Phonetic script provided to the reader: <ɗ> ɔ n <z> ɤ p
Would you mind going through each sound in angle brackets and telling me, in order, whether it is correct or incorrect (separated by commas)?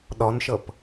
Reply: correct, incorrect